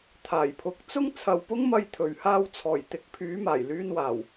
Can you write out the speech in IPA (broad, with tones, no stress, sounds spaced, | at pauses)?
t̪ʰ aː˨˩ j pʰ ʊ˨˥ k̚ t͡s ʊ˥ ŋ t͡sʰ ɐ˨˧ w p ʊ˥ ŋ m ɐ˧ j t̪ʰ ɵ˨˩ ɥ h aː˧ w t͡sʰ ɔː˨˩ j t̪ ɪ˨˥ k̚ pʰ yː˨˥ m aː˨˩ j l yː˧ n w aː˨˩ w